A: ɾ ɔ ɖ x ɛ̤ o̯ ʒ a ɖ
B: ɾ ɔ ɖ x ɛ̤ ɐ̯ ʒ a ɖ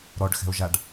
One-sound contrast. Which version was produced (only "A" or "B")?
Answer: A